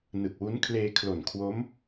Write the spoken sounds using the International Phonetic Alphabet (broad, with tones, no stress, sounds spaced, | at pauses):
n ɯ˨˩ k̚ w u˦˥ n kʰ l eː˧ kʰ l o˨˩ n kʰ w o˦˥ m